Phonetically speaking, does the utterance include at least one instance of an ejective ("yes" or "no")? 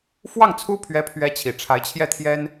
no